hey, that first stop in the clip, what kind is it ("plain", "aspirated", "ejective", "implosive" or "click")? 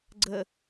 click